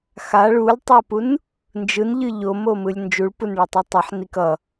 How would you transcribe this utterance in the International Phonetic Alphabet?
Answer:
x a ɭ u lʲ tˤ o p u n | n d͡ʒ ɯ n ʎ ɯ ʎ o m o m ɯ lʲ n d͡ʒ u ɭ p u n ɭ ɛ tˤ ɛ tˤ ʌ ħ n i k ʌ

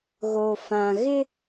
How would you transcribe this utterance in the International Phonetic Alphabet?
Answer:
ɣ o˨ f ã˨ ɣ ɪ˦

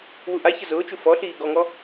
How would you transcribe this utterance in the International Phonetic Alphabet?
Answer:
w u ʔ a ç ə z ʊː t͡ʃ u f ɔ ɬ iː ɡ ɔ ŋ ɔ

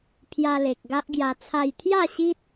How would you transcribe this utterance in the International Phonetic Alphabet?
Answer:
pʰ j a˧ l e˨ k̚ ɡ a˦ ʔ ɡ j a˧ t͡sʰ a˧ j t̪ʰ j a˥˧ ɕ i˦ t̚

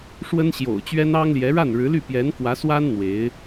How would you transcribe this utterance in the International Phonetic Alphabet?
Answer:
ʂ w ə˥ n ɕ j o̰˨˩ ʊ̯ t͡ɕ ɥ ɛ˥ n ɑ˥ ŋ l j ɛ˧˥ ɻ a˥˩ n ɻ ɻ̩˧˥ l y˥˩ p j ɛ˧˥ n k w ä˧˥ s w a˥ n n̪ w e˧˥ ɪ̯

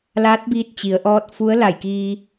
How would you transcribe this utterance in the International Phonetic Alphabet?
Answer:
l aː˧˥ t̚ b iː˧ t̚ t͡ɕ i˩˧ ə̯ ʔ ɔː˧˥ t̚ f u˧˥ ə̯ l a˧˩ j k iː˧

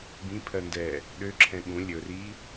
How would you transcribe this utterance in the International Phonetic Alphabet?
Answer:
b ĩ pʰ ɜ n d ɛ | ɗ ø ǁʰ ɛ̃ ɠ ũ lʲ ɵ r i

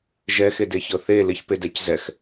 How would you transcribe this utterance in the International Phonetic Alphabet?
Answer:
ʒ ɛ x e d e ç ɤ θ e l ɪ ç p e d ɛ c z ɛ x

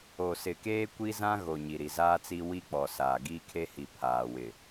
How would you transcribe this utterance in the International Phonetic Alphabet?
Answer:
o˨ s ɪ˨ k eː˦ kʷ i˦ z ã˦ ɣ o˨ ɲ i˨ ɾ i˨ z aː˦ t͡s i˦ w i˦ k͡p ɔ˨ s aː˨ ɡ iː˦ kʰ e˦ h i˨ pʰ aː˨ w ɪ˨

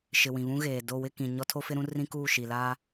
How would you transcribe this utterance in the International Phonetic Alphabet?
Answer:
ʃ ɪ˨ w ĩ˨ β ũ˦ ɣ eː˨ d o˦˨ w ɪ˦˨ k ĩ˨ ɲ ɔ˦ tʰ o˦ f ɪ˦ ɾ ũ˦ r ĩ˦ k uː˦˨ ʃ i˨ l aː˦

